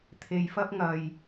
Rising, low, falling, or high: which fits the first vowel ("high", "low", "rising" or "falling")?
low